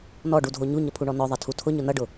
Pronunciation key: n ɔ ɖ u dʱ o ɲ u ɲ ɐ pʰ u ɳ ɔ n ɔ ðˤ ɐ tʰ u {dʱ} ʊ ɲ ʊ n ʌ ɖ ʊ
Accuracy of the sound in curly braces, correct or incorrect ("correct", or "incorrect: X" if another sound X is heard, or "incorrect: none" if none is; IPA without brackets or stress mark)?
incorrect: tʰ